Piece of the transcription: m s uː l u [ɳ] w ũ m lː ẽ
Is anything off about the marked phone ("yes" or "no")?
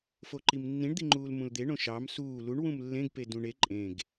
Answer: no